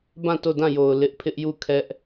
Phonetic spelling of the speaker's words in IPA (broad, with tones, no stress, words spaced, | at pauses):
bã˦˨to˦˨dã˦˨jo˨ʊ̯ lɪ˦ʔpʰɪ˦ʔju˦˨ kʰɛ˦ʔ